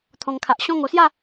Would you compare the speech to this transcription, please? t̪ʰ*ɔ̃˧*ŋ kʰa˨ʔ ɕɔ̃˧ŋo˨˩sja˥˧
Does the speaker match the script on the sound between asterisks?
no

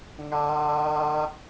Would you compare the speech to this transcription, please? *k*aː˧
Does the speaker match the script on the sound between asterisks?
no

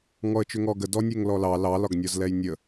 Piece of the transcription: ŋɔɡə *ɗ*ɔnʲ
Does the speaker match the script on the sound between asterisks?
no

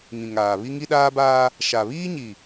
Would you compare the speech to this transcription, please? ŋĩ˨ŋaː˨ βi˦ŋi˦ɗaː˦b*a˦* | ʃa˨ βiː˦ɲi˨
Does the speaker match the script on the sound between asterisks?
no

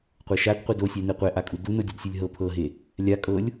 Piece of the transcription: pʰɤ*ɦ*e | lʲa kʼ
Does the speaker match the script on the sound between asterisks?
yes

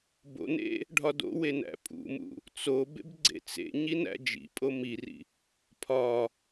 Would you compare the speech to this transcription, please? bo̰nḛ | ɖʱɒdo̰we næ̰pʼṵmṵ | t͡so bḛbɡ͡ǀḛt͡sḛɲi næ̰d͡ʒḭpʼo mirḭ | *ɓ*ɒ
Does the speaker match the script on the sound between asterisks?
no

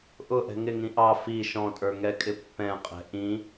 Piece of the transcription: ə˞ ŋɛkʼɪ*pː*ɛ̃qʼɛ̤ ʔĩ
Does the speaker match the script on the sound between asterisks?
yes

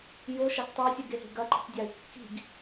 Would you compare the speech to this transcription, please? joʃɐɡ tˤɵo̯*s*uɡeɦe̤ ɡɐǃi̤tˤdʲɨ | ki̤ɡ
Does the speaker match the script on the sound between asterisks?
no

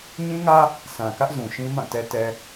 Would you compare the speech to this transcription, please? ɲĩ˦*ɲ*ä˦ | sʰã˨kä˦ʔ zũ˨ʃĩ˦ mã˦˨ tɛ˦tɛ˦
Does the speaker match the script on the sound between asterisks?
no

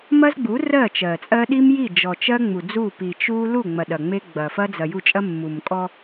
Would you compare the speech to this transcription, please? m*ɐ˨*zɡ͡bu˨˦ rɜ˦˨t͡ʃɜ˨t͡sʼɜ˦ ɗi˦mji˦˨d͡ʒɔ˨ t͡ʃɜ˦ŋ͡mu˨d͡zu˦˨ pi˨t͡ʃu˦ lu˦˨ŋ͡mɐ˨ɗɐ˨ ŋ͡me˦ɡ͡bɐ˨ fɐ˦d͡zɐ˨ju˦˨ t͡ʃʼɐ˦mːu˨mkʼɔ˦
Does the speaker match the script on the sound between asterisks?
no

